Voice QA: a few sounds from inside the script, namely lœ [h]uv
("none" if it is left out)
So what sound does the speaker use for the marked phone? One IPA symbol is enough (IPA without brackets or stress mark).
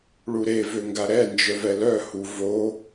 h